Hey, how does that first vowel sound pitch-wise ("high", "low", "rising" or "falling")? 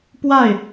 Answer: falling